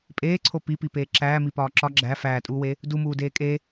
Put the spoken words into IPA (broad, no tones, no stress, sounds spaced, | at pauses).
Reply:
pʼ eː ǀʰ o p i p i p eː ǁ æː m i p ɒː ǁ ɒ ɡ͡ǁ æ f æː tʼ uː w e | d u m uː d eː kʼ e